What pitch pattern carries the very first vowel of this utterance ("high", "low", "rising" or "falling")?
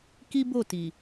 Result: high